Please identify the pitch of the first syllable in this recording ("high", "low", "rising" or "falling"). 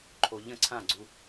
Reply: low